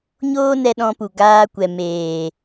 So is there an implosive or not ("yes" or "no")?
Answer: yes